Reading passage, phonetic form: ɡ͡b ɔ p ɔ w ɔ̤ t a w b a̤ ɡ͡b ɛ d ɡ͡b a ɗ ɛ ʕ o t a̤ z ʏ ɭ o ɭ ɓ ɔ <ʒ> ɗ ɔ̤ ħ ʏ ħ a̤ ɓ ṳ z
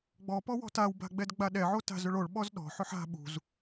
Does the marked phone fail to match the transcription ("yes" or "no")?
yes